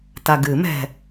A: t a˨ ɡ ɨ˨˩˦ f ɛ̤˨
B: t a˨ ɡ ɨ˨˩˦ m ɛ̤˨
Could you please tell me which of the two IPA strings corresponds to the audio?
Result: B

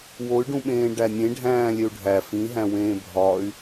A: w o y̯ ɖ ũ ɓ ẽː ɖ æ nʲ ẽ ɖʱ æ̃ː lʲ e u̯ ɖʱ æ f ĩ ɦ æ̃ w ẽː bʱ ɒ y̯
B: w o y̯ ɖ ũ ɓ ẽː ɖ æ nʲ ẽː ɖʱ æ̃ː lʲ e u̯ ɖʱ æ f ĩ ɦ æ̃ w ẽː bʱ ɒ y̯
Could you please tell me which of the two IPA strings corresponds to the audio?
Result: A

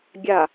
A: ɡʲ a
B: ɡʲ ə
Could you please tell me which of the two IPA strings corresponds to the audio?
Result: A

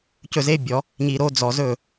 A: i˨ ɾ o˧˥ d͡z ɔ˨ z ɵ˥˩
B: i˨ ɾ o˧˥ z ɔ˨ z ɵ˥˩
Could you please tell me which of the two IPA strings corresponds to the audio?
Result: A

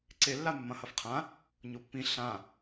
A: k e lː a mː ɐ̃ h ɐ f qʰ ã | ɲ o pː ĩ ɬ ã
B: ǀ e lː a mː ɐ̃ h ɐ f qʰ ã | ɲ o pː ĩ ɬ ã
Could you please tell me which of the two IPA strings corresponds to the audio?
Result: B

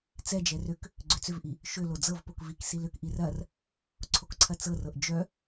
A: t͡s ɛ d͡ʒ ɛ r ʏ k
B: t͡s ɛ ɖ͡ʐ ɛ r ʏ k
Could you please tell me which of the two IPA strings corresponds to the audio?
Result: A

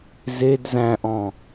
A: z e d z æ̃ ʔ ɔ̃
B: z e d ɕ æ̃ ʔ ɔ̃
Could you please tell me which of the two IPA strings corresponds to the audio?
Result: A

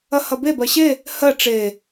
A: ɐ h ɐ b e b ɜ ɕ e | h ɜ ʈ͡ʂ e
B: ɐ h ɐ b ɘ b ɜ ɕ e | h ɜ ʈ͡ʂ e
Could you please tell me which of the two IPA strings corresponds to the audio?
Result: A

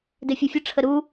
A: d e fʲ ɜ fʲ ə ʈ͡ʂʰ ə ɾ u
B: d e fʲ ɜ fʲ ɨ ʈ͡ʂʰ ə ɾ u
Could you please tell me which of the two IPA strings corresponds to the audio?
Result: A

